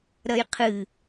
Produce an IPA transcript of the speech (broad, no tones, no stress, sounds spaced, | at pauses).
ɾ ɐ j qʰ ɨ